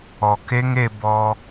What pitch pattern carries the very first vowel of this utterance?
low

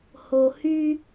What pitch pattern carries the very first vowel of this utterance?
low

